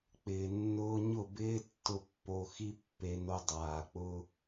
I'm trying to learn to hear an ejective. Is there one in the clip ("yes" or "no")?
no